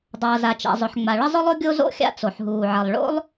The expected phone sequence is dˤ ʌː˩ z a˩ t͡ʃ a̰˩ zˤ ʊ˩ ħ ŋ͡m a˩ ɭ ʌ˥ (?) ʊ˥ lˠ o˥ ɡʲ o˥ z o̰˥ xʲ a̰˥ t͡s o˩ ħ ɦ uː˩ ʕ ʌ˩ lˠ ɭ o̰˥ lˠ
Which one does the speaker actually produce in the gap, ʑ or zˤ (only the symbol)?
zˤ